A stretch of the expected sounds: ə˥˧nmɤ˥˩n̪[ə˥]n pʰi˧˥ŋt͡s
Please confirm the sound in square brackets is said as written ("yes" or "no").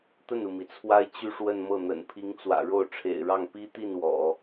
no